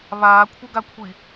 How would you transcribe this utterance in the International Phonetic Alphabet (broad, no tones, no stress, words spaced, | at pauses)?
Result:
βaːkʷʰəɡakʷʰi